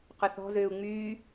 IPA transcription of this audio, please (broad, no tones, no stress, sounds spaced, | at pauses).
q ʏ θ ɔ̤ z ʏː u̯ ŋ͡m yː